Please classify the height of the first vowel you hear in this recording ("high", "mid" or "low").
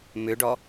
high